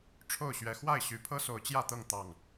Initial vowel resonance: oral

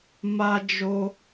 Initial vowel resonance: oral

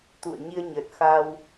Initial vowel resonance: oral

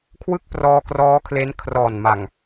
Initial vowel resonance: oral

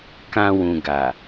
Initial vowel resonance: nasal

